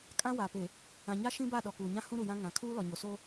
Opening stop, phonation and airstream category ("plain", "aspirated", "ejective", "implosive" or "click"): ejective